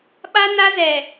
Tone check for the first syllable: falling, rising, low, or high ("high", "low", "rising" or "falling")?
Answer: high